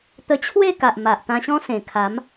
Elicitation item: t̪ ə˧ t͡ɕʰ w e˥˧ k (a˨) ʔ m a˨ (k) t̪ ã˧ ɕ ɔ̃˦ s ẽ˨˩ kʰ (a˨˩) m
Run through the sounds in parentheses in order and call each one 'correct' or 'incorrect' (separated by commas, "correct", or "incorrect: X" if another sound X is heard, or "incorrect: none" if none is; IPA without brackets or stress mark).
correct, incorrect: ʔ, incorrect: a˨˦